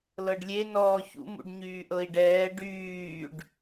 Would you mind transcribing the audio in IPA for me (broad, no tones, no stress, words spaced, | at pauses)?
lɤɖlʲe nɔːçṵ mṵɖɲyːʔɤi̯ɖɛː ɖyːɖ